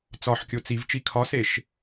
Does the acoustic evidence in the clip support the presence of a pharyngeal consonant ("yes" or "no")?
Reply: yes